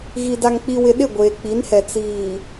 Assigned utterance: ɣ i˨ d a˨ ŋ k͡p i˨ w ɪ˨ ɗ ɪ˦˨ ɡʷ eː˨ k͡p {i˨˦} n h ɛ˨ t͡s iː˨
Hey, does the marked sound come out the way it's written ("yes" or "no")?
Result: yes